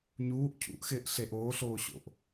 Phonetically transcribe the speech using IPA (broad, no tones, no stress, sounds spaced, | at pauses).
ɲ uː ʔ cʰ ṵ ʔ x ɪː ʔ ɬ e ʔ oː ɬ oː ɕ o̰ ʔ